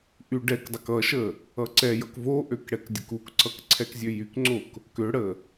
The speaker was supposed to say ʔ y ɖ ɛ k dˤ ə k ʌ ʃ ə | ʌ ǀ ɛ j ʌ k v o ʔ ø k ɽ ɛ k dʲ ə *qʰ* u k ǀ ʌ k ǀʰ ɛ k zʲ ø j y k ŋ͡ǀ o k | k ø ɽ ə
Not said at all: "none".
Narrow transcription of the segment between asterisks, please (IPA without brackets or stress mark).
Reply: k